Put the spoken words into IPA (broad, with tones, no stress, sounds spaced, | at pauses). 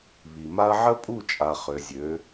β i˨ m a˦ ɐ̯ ʕ ə˦ pʼ u˦˨ t͡ʃʼ a˨ χ ø˨ zʲ ø˨˦